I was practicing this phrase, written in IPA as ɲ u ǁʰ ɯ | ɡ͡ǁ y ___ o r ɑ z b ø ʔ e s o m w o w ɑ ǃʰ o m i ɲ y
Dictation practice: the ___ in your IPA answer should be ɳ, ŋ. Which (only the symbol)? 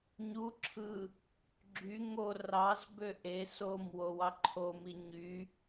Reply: ŋ